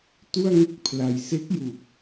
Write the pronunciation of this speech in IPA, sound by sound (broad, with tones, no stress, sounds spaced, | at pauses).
t u˥˩ a̯ ŋ ɯ˥˩ k̚ pʰ l a˧ j s e˦˥ k̚ j u˨˩ k̚